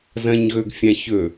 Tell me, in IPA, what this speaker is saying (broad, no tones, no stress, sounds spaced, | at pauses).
z ɐ̃ ɲ ɣ ɵ ɡ fʲ ã ç ɵ